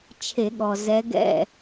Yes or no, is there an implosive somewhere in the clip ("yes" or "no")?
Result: yes